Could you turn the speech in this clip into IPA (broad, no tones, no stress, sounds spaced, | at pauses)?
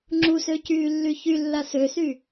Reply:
ŋ͡ǁ u s ø c yː lː y ç y lː a s ø s y